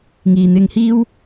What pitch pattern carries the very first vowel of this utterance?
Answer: low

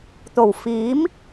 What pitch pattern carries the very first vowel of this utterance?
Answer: low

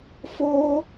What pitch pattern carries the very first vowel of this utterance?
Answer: high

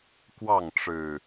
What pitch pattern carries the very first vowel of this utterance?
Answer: falling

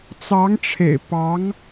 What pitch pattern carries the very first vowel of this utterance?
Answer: rising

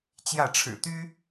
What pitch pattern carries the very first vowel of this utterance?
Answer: falling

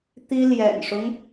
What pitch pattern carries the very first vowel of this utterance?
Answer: high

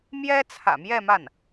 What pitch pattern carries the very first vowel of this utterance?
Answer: high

